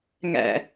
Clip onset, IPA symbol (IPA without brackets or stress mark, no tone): ŋ